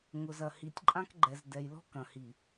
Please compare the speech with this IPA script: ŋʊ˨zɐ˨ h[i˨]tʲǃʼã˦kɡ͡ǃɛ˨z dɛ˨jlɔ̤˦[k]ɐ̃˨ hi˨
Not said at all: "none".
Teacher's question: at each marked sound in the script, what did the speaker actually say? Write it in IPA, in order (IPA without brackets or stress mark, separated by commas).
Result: i˨, k